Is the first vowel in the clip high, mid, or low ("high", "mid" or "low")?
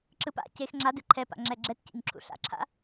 high